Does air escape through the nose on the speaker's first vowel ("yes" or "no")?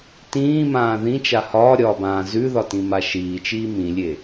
yes